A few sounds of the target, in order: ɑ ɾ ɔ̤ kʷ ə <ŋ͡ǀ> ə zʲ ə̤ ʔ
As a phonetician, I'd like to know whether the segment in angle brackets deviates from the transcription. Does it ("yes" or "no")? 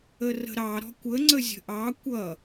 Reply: no